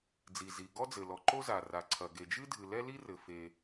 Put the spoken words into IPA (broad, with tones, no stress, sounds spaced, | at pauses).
d͡z i˩ z i˩ ɡ ɔ˥ d͡z ɘ˩ l ɔ˩ ǃ o˥ z a˩ r a˩ ǀʰ ɐ˩ ɡ e˩ d͡ʒ ɨ˥ dʱ ɨ˩ l ɛ˥ l i˥ r ɘ˩ f e˩